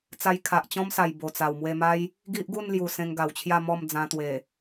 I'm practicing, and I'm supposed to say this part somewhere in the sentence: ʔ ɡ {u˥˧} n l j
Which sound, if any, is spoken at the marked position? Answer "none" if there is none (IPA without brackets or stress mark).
u˥˧